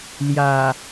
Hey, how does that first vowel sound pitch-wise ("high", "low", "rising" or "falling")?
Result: low